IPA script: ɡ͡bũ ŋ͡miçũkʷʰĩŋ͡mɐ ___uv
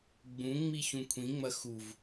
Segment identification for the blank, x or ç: x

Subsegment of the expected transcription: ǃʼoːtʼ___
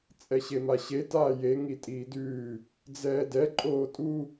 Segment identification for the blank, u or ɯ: u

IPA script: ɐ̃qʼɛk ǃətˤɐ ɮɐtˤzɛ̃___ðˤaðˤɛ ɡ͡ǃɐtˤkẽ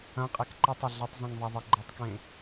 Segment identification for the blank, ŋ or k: ŋ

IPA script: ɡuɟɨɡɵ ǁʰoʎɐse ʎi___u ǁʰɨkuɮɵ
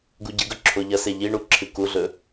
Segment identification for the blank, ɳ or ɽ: ɳ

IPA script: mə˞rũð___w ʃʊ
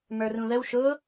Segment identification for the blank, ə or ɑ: ə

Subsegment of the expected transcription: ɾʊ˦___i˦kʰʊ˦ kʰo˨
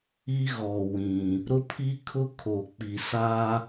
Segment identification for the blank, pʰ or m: pʰ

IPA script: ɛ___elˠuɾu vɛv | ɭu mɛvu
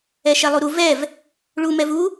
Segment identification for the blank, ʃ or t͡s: ʃ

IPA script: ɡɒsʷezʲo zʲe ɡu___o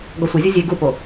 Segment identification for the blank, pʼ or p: p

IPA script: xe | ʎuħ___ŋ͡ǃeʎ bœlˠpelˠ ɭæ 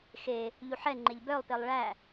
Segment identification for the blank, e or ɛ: ɛ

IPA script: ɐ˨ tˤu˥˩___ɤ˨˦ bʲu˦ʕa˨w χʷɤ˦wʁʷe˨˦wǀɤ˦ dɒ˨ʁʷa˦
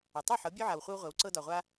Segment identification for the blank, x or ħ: ħ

